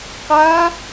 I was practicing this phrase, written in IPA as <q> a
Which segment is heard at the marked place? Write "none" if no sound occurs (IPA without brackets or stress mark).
q